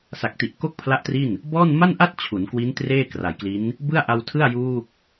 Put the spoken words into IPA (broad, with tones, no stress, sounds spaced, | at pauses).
s a˨˩ k̚ t i˨˩ ʔ k o˥˩ k̚ pʰ l a˦˥ ʔ t r i˥˩ n | b ɔː˥˩ n m a˥˩ n ʔ a˥˩ t̚ t͡ɕʰ u˩˦ n k w i˦˥ n t r eː˥˩ k r a˩˦ j k l i˦˥ n | b ɯ˥˩ a̯ ʔ a˧ w tʰ ɯ˥˩ a̯ j uː˥˩ k̚